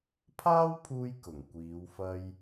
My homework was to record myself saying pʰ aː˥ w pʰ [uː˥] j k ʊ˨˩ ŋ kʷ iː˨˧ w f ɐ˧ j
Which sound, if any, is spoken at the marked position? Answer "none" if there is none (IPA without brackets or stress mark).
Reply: uː˧